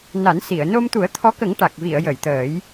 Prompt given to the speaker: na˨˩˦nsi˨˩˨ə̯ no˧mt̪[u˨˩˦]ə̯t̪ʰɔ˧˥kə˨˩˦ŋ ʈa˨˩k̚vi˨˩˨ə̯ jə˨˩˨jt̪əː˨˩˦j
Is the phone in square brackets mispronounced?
no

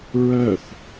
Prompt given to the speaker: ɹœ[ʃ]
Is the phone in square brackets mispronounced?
yes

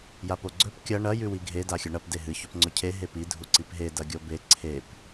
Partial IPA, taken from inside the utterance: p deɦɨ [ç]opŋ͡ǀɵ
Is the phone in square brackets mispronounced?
no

